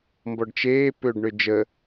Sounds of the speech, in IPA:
m b ɔ ɖ t͡ʃ eː p øː ɖ ɳ ø d͡ʒ ə

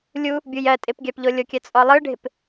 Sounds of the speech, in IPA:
lʲ u | bʲ u j ɜ tʼ ɪ p ɡʲ a p ʎ o lʲ o kʲ ɜ t͡sʼ ɔ lˠ ɯ ɖʱ ɪ p

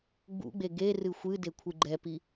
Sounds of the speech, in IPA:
ɡ͡b ṵ ɡ͡b e ɡ e r ɨ xʷ ɨ d e kʷʰ ɨ ɡ͡ǃ ɛ p i

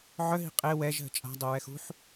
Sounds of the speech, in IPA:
ʕ œ ɦ i̤ qʼ e w ɛ ʒ ɦ ə̤ t͡ʃʼ a̤ dˤ o ɹ ɛ x ṳ ħ

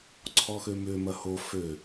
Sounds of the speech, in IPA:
ǀʰ ɔ x ø m ʏ m ɐ h o f ø

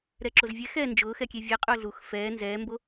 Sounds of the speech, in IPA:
ɾ ɛ ǁ o z vʲ ɛ x ɛː n d͡ʒ ʊː x ɛ kʲ e vʲ ɛ qʼ ʊː ɮ u x f ɛː n z ɛː m b o

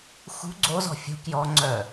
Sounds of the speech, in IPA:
x ṳ ɡ͡ǀ o z ɔ̤ fʲ ṳ k j ɔ ŋ͡ǀ œ

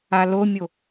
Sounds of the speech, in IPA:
a l o mʲ o

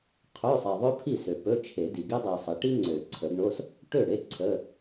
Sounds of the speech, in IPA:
qʰ ø˧˥˧ sˤ i˨ ðˤ ɵ˥ pʰ i˥˩ s ø˨ p ɵ˧˥˧ t͡ʃʰ e˨˩˦ d i˨ ɡ i˥ dˤ i˨ sˤ i˩˥ ʈ i˥ ŋ͡ǀ ø˨˩˦ ǀʰ ə˨˩˦ ɡ ɳ o˧˥˧ s | ʈ ø˥˩ ɽ e˥ ǀʰ ə˧˥˧

